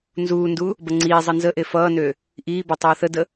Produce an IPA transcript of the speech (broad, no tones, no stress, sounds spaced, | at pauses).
n z uː n d u | b ʌ ŋ͡ǀ iː zˤ ʌ n z ə ʔ e f ʌː n ø | ʔ iː b ɔ tˤ ʌː θ ə d ə